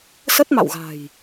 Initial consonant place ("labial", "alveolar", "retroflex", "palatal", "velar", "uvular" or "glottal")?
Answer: alveolar